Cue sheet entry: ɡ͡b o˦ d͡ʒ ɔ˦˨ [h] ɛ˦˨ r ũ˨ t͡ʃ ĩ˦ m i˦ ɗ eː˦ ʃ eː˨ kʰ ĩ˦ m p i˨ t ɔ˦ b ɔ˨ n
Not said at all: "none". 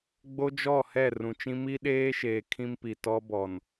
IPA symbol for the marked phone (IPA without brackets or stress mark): h